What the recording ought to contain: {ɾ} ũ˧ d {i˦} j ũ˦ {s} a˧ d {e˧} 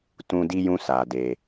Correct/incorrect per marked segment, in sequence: incorrect, correct, correct, correct

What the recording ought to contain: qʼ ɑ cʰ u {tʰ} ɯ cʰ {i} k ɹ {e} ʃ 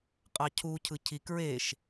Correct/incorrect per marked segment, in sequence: incorrect, correct, correct

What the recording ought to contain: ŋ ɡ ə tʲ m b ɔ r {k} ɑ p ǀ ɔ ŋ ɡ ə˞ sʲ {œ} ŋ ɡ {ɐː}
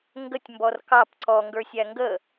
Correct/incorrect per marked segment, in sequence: correct, incorrect, incorrect

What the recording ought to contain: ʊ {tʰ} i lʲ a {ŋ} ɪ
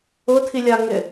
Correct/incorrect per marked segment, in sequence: correct, correct

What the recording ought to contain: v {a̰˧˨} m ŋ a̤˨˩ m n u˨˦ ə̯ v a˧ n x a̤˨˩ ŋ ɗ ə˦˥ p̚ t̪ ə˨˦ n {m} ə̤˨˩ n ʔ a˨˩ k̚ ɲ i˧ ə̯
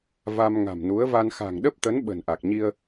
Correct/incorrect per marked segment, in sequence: incorrect, incorrect

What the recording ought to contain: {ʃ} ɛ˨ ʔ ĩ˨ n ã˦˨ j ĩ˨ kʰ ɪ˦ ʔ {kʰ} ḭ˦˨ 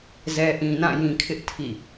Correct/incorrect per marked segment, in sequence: incorrect, incorrect

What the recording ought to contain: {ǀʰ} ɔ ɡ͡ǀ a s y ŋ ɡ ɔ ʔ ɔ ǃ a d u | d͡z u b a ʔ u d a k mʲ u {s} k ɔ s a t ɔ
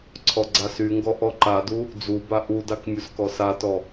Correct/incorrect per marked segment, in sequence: correct, correct

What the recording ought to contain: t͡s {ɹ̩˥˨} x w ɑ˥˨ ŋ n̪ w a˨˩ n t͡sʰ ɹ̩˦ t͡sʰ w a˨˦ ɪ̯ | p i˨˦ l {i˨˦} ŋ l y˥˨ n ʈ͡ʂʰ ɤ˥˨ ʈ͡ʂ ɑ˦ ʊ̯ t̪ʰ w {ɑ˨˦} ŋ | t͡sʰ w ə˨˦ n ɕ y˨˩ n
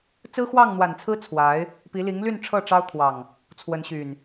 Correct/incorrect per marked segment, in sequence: incorrect, correct, incorrect

